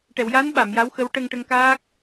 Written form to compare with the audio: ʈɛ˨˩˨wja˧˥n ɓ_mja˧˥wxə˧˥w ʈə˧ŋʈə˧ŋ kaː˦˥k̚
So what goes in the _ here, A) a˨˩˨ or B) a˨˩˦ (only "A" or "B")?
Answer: A